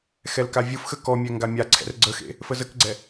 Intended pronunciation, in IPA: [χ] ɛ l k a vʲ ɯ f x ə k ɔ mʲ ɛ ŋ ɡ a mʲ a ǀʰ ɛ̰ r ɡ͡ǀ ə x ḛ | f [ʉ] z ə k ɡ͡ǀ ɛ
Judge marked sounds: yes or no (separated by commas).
no, no